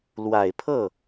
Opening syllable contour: low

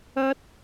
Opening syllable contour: high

